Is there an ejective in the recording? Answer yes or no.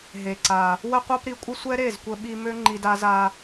yes